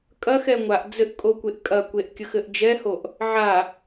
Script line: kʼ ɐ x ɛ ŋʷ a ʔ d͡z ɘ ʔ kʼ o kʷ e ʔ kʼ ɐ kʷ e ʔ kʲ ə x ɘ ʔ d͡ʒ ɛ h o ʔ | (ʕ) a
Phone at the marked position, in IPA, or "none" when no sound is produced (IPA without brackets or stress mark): ʕ